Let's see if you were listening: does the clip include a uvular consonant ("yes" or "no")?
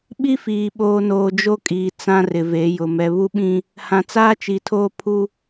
no